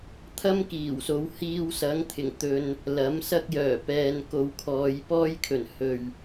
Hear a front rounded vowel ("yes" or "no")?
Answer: yes